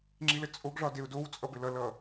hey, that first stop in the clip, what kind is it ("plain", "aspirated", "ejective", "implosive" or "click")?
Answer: click